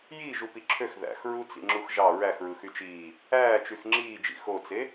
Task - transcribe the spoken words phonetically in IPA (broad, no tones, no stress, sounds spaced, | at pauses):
j i ʒ u p i ǁʰ ø x ð æ̰ x ɹ u t͡s ḭ ŋ͡ǁ u x ʒ ɑ ɹ æ x ɹ ɯ x y t͡ʃ iː | æː t͡ʃ y x ŋ͡ǁ iː d͡ʒ ḭ x o t͡s e